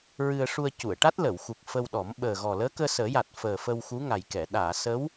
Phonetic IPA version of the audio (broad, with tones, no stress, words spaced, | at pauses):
ɹɨ˧ə̯ʂu˧ə̯ cu˨˩˨ə̯ʈa˦˥t̚lə˨˩˨wxu˨˩k̚ fə˧wɗɔ˨˩˦m ɓəː˨˩ɣɔ˨˩ ləː˧˥kəː˧səː˨˩˦ja˨˩t̚ fəː˨˩ fə˧wxu˧˥ŋa˨˩jkɛ˨˩˨ ɗaː˨˩˨sə˧˥w